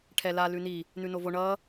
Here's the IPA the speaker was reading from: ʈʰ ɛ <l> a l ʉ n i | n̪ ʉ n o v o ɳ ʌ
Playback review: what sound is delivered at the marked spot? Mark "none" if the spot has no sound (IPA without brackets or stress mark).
l